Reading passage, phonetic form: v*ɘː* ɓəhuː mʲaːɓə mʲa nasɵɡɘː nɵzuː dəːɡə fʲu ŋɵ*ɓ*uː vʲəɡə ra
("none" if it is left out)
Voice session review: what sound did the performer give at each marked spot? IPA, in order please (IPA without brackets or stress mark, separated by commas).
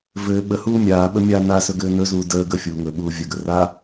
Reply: ɘː, ɓ